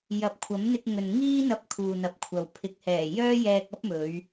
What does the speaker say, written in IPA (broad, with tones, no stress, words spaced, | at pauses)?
jɐ˨˥p̚kʷʰɐ˨˥mn̪ɪ˧k̚ ŋɵ˨n ŋiː˥n̪ɐ˧p̚ kʰuː˨n̪ɐ˨˥p̚kʷʰɐ˨w pʰɪ˨˥k̚hɛː˨˩jœː˥jɛː˧k̚ ɐ˥p̚mɵ˨˧ɥ